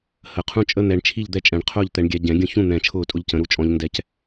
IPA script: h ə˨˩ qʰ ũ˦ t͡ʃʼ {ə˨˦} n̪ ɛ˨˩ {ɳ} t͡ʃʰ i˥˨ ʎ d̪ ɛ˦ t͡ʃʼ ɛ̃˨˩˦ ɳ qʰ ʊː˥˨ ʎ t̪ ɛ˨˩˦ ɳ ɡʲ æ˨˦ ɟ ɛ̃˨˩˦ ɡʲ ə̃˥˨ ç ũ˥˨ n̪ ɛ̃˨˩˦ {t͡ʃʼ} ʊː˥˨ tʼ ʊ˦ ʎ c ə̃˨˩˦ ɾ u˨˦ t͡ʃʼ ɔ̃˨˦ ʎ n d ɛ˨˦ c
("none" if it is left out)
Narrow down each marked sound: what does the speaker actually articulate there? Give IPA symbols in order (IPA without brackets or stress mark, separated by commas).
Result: ə˦, ɳ, t͡ʃʰ